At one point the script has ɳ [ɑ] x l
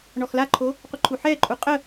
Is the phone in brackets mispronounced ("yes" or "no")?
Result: yes